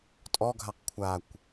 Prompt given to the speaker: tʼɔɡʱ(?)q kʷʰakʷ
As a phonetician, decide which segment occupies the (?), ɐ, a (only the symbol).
a